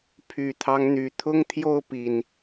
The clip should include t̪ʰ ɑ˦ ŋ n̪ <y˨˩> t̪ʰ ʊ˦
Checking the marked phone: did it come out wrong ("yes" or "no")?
no